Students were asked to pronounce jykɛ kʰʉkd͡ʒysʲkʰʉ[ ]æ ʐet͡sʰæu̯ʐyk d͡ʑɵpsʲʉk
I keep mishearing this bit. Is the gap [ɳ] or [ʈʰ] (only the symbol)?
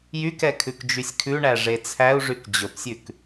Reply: ɳ